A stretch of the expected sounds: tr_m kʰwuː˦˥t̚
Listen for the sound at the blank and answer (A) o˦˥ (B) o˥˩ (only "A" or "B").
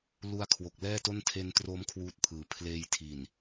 A